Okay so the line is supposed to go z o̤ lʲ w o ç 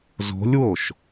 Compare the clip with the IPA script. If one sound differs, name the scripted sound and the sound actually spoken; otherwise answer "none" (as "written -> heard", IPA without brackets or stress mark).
ç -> ʃ